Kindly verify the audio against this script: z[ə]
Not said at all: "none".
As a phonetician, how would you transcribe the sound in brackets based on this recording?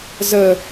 ə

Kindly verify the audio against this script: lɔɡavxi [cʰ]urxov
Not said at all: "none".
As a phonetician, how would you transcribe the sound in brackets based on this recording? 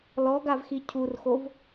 cʰ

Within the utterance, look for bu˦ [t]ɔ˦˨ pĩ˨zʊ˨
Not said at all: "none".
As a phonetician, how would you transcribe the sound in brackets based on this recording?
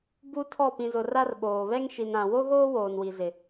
tʰ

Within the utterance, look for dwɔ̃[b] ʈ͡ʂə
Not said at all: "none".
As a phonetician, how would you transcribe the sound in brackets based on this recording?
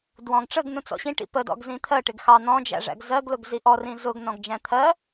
ɡ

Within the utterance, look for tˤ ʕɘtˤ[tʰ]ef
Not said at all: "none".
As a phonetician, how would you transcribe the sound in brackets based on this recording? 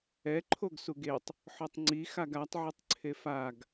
ǀʰ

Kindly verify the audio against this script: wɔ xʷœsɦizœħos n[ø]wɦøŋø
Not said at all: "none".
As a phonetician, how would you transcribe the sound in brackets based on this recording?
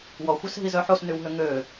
y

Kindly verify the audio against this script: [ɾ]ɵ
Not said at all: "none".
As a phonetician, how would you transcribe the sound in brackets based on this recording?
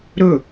ɾ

